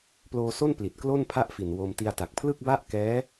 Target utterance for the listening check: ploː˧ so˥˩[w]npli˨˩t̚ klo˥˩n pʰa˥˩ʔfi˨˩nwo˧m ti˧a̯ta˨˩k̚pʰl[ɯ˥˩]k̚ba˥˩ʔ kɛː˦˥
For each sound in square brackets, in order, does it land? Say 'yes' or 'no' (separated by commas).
no, yes